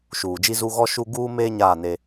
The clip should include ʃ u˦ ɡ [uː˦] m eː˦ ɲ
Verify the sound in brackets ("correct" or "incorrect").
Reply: correct